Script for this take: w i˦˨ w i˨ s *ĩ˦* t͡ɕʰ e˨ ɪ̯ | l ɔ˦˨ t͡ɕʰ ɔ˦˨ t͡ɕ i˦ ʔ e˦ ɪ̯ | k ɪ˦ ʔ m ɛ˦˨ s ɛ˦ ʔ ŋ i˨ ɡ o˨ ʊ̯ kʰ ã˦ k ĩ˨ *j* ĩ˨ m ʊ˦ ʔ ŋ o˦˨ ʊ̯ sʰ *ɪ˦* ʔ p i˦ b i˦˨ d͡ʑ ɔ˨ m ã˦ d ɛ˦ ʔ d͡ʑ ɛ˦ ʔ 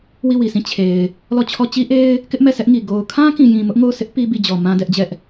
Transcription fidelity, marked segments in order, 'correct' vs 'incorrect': incorrect: ĩ˦˨, correct, correct

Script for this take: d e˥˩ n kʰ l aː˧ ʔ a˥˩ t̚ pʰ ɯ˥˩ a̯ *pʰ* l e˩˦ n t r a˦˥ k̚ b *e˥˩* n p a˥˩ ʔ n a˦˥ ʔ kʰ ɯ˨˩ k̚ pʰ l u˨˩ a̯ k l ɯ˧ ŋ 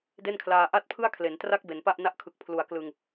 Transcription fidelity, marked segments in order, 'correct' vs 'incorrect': incorrect: kʰ, incorrect: e˩˦

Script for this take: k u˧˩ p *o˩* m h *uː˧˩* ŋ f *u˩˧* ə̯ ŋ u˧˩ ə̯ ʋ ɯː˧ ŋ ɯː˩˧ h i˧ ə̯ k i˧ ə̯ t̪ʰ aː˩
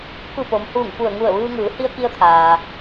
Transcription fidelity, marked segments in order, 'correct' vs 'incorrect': correct, correct, incorrect: u˧˩

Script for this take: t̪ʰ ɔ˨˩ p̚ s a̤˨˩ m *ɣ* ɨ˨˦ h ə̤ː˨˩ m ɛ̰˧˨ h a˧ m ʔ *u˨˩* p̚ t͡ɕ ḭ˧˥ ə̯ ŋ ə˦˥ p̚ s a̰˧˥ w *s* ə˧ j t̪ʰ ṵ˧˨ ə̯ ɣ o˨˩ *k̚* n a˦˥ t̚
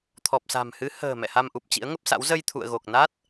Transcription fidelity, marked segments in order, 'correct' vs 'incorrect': incorrect: h, correct, incorrect: z, correct

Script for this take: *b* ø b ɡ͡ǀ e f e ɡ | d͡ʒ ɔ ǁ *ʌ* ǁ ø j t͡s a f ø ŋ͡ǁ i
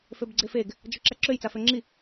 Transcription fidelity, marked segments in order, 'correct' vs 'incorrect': incorrect: f, incorrect: a

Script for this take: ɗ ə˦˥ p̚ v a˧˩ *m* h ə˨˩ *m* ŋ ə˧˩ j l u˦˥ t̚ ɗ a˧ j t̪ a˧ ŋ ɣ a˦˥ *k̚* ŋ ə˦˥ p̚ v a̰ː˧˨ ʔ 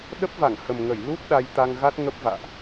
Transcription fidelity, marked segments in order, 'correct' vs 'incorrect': incorrect: ŋ, correct, incorrect: t̚

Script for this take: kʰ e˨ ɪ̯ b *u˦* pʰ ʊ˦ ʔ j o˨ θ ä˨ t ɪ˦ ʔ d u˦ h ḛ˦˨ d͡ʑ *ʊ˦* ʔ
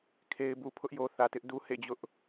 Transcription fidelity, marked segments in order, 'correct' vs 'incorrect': incorrect: u˨, correct

